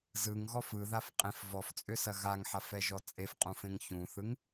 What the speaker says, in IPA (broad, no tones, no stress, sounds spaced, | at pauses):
z ɯ ŋ ɣ ɔ f ɯ ð a f qʼ ẽ f v ɔ f t͡sʼ ʏ s ɐ ɣ a ŋ ħ a f ɛ ʒ ɔ t͡sʼ e f qʼ ũ f ẽ ŋ ç ũ θ ɯ ŋ